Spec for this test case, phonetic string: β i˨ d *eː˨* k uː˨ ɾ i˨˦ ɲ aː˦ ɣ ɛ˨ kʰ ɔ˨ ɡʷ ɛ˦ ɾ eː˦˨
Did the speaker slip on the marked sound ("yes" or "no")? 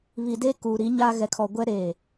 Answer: yes